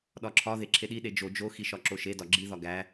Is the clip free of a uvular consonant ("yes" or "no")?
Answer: yes